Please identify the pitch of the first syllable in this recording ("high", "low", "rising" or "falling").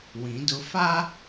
rising